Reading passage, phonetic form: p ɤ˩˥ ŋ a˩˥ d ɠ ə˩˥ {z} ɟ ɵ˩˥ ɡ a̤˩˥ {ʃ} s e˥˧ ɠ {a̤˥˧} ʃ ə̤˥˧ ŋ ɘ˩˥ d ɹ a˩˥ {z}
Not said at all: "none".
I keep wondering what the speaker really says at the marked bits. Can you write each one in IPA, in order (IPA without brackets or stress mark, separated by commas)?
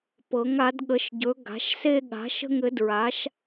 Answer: ʃ, ʃ, a̤˩˥, ʃ